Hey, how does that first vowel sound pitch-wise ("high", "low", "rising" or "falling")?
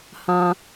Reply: low